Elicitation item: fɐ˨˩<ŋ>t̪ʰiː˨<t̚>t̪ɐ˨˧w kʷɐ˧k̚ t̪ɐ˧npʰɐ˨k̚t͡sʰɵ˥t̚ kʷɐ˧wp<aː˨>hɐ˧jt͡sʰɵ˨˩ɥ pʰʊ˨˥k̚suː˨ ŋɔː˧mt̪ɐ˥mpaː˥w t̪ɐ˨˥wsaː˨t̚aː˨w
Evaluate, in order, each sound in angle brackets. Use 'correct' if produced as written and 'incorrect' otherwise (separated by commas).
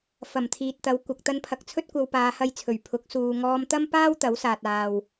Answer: incorrect, correct, incorrect